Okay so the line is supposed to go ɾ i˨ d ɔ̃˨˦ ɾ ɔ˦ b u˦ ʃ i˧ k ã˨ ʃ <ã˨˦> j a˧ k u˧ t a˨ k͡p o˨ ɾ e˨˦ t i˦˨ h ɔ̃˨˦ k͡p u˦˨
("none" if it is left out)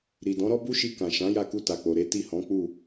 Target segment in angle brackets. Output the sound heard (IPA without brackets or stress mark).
ã˨˦